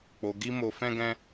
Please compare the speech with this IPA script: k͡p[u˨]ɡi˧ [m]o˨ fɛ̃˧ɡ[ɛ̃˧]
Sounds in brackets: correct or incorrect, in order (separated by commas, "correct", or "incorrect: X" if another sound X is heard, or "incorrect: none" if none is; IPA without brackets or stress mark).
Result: incorrect: o˨, correct, correct